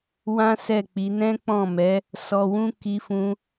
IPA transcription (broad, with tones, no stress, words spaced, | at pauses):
wã˦sɛ˦˨k͡pi˨˦ nɛ̃˦k͡pɔ̃˦˨mɛ˨˦ | sɔ˧wũ˦ ki˧fũ˧